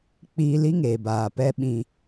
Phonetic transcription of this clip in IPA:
k͡piː˧li˦ŋeː˨ baː˨pɛ˧ ɓĩ˧

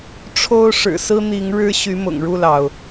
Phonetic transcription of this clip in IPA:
ʈ͡ʂʰo˦ʊ̯ ʂɻ̩˨˩sɹ̩˦n̪i˨˦ŋ ɻɻ̩˦ ɕy˨˦mʊ̰˨˩ŋɻu˥˨lɑ˩ʊ̯

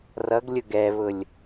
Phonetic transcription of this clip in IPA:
rʌɡlʲʊ ɡɛβʊlʲ

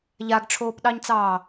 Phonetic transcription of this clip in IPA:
ʎaɡʈ͡ʂʰoːpɗɑɲt͡sɑː

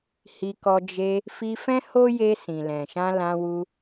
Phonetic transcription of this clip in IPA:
hi˧kɔ˧ d͡ʒe˧ | fi˧fɛ̃˦ho˦je˧ sĩ˨lɛ̃˨ ʃã˧ lã˧wu˧

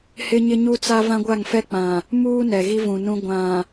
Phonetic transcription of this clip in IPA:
hɪ˦ɲɪ˦ɲu˦t͡sa˦ vã˦ɡʷa˦˨ŋfɛ˦k͡pã˨ | muː˦ nɛ˨ɣi˦vũ˨nũ˦ ɡʷã˨

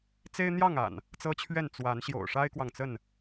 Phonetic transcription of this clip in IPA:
t͡se˦ɪ̯n̪jɑ˥˨ŋ a̰˨˩n | t͡sɤ˦t͡ɕʰɥɛ˥˨n t͡swa˨˦n ɕjo̰˨˩ʊ̯ʂa˦ɪ̯kwɑ˨ŋt͡sə˥˨n

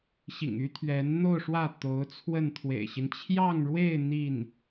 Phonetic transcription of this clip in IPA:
ɕḭ˨˩ŋy˥t̪ʰɥɛ˧˥n n̪o˥˧ʊ̯ʂwä˥˩ t̪o˧˥ʊ̯t͡sʰwə˥˩n t̪ʰwḛ˨˩ɪ̯ɕi˦n t͡ɕʰjɑ˥˧ŋɻwe˥˧ɪ̯ n̪i˥˩n

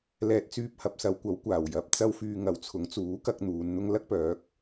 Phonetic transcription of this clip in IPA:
lɛː˨t̚t͡syː˧p̚hɐ˨p̚sɐ˨˧w kʷɐ˨˥wkʷaː˨˩w jɐ˨p̚ t͡sɐ˥wfyː˧ŋɐ˨˧wt͡sʰʊ˨˥ŋ t͡suː˨˥kɐ˧k̚ n̪uː˨˧n n̪ʊ˥ŋ lɐ˥k̚pœː˨˥k̚

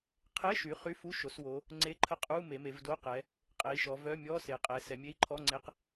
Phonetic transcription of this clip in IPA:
qʰe˧˥˧ʃy˩˧ χy˧˥˧fu˧˥˧ʃo˩˧swo˩˧ | ŋ͡ǀe˧˥˧ǃʰə˧˥˧qʼu˧˥˧ me˩˧me˩˧vdo˧˥˧qɛ˩˧ | qʼe˩˧i̯ʃɔ˩˧vœ˧˥˧mʲɔ˧˥˧ se˩˧qʼɛ˩˧ sɛ˩˧mʲe˧˥˧i̯ǃʰɔ˧˥˧ŋ͡ǀe˧˥˧q

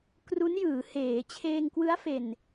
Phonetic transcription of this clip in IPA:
kru˦˥njɯː˩˦ heː˩˦ t͡ɕʰeː˧ŋkwɯ˦˥a̯ fe˨˩n

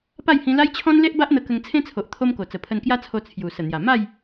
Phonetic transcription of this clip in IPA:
pa˥˧jhĩ˧ la˦jt͡ɕʰɔ̃˦n le˦ʔba˦ʔn̪ə˧ kə˧ŋt͡sʰẽ˦t͡sʰo˨ʔ t̪ʰo˦mko˨˩t͡sə˨˩ pʰə˧nkja˦t͡sʰo˧ t͡sʰju˨˩ sə˨˩n̪ja˨˩ ma˥˧j

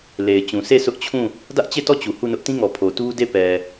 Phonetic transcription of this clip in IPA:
le˨ɪ̯t͡ɕũ˨sʰe˦˨ sʰʊ˦ʔt͡ɕʰũ˦˨ | dä˦ʔt͡ɕe˦˨tɔ˦˨ t͡ɕu˨hu˦˨nʊ˦ʔ tĩ˦ŋɔ˨pʰo˨ tu˦de˦˨pɛ˨

